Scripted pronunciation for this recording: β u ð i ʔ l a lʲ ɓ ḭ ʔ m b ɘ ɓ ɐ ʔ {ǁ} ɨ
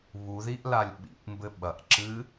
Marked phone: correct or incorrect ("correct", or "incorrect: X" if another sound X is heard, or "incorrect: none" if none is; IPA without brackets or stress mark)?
correct